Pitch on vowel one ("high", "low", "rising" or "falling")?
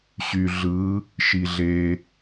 low